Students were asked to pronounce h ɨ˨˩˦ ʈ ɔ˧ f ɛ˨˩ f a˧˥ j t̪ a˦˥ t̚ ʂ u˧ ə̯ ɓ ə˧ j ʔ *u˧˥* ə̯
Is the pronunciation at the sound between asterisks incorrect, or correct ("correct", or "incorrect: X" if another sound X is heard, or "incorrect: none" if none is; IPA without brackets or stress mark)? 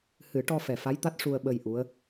correct